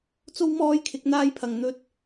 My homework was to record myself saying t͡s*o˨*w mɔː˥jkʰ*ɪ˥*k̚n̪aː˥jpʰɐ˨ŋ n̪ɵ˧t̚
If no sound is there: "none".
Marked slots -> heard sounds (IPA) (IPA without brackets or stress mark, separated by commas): o˥, ɪ˨˥